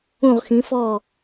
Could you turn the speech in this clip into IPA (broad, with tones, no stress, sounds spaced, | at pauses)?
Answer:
ũ˦˨ ʁ x ĩ˨˦ f ɔ˦˨